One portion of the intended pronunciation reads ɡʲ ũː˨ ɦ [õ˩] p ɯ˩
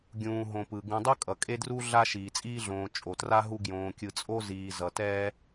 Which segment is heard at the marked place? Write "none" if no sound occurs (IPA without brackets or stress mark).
õ˨